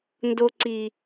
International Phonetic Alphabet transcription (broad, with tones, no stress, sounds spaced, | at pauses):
n d o˧ ǀ i˨